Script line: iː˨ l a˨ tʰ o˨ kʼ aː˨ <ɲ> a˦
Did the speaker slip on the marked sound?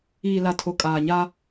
no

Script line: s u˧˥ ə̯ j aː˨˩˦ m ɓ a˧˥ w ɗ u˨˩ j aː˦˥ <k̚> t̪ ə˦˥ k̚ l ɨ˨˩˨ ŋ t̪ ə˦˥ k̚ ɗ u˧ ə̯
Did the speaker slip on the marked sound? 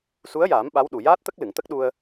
yes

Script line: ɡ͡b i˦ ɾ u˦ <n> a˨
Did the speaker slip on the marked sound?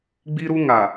yes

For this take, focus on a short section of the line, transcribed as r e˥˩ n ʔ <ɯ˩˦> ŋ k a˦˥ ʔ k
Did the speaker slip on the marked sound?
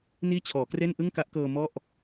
yes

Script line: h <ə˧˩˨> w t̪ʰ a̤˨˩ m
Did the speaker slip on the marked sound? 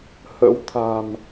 yes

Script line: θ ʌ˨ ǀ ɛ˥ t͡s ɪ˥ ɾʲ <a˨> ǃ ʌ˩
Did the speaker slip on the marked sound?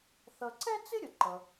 yes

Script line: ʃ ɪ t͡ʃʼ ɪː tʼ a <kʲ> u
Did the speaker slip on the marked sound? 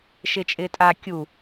no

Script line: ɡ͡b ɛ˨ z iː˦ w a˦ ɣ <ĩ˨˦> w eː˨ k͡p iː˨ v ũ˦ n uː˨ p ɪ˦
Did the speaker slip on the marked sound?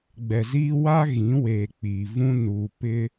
no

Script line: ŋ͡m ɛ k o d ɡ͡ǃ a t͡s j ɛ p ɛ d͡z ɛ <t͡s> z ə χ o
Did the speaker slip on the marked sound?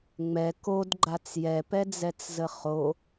no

